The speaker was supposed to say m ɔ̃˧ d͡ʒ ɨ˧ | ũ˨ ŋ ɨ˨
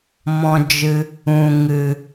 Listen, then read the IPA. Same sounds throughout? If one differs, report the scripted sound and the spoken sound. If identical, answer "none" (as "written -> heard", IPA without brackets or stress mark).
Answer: none